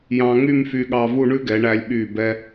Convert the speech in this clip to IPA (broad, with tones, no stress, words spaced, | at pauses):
jɑ̃˧ŋy˥˧mfy˧ɠɑ˧ vu˥˧ɳʉ˥ɡɛ˩˧ɳæ˧lʲ ɓy˧˩bɛ˧